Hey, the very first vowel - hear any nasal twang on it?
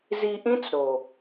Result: no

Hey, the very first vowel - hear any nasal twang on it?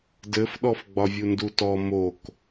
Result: no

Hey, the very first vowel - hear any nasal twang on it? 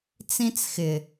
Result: yes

